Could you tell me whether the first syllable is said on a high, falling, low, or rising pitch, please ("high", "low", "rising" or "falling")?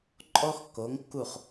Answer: high